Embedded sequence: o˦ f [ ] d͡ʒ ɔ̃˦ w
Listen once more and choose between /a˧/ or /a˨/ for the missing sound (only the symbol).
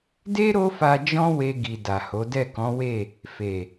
a˧